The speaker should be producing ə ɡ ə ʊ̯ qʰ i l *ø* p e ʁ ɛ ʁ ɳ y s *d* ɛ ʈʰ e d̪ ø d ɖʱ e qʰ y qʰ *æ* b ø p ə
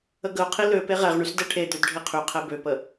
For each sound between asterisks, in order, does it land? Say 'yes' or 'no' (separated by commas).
yes, yes, no